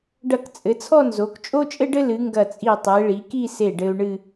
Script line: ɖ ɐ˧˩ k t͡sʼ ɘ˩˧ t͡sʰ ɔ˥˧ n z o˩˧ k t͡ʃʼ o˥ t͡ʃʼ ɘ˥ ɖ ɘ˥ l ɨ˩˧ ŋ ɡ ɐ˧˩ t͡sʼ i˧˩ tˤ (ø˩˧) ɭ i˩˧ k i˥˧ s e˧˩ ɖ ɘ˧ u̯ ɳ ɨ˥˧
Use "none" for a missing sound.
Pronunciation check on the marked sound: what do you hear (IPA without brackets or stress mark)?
e˩˧